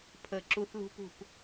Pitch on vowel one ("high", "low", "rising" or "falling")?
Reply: falling